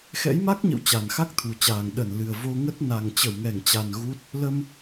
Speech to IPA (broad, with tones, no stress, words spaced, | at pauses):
xɛ̰˧˥jma˦˥k̚ɲə̰˧˨w t͡ɕa˨˩nxa˦˥k̚t̪ʰu˨˩t͡ɕaː˨˩ŋ ɗə˧˩nlɨ˨˩ə̯vo˧ŋə˦˥t̚ na˨˩ŋ t͡ɕə˧˩wŋɛ˧˩ŋt͡ɕa˨˩n ɣu˦˥t̚ | lə˧m